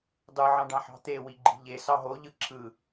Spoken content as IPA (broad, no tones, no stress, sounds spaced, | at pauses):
dˤ ɯ ʕ ɑ̃ ɖ ɑ̃ ħ ɑ̤ t̪ e w i ɡ͡ǃ i̤ ʎ e s ɑ ɦ o ʎ ɯ ǁʰ ɯ